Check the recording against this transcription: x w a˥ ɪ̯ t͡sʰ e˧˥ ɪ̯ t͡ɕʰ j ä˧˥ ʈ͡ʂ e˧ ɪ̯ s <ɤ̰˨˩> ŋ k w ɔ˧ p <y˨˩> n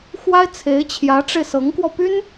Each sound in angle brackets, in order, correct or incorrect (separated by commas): incorrect, incorrect